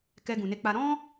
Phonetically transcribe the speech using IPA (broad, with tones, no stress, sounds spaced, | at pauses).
k ɛ˧ ɡ ũ˨ n e˧ k͡p a˧ ɾ ɔ̃˦